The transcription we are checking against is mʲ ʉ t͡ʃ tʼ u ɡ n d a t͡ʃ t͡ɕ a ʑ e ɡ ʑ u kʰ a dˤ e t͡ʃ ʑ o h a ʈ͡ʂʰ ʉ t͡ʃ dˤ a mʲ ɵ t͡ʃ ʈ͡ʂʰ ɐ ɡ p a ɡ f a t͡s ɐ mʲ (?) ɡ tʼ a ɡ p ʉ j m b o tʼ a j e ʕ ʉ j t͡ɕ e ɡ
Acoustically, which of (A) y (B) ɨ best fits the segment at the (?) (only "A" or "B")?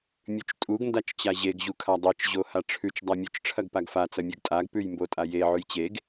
B